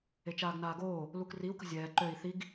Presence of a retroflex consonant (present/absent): absent